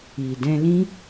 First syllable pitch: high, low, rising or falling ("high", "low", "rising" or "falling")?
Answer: low